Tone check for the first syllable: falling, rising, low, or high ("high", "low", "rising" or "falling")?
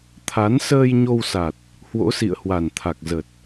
rising